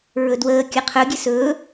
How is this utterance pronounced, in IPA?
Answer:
ɹɵdwəː kʲɛqʰɵ ɡʲesɵː

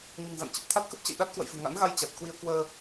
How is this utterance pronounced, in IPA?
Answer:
ɲɨ̤˨˩ŋza̰˧˨nt͡ɕə˨˩p̚ t̪ʰa˦˥t̚kə˦˥p̚t͡ɕə̰˧˨j ɗa˦˥t̚ kwə̰˧˨jfɨ̤˨˩ ŋa̰˧˥nɣa˧j t͡ɕa˨˩t̚kwi˧ə̯ kwəː˧

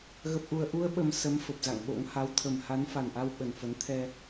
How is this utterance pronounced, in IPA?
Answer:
ɣə˨˩p̚ʔu˨˩ə̯ʔu˧ə̯ ɓə˨˩m sə˨˦m fə˨˩p̚za̰˧˨ŋɓo̰˧˥ŋ ha˨˦wt̪ʰə˨˩m ha˨˦n fa˨˩nʔa˧w ɓə˨˩nfə˨˦n t̪ʰɛ˧

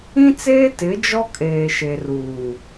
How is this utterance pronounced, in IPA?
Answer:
ĩ˦t͡seː˦ tɪ˨˦d͡ʒɔ˦ kʼeː˨ʃe˨ruː˨

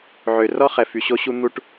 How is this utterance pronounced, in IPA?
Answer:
ʕø˨rɔ˦ χɛ˨fy˨ɕo˦ɕu˦ n̪u˦ʈ

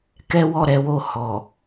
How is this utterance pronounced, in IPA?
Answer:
kɛ˦wɔ˦˨ɾɛ˨˦wo˦˨ hɔ˨

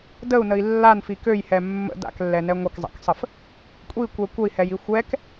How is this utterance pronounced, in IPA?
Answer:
dəu̯nəi̯ lːanfi køjhɛ mːə̰ da̰klːɛnɛ ŋʷəkzˤa̰ksˤəf | kʷʼikʷɛ kʷəi̯hɛji xʷɛk

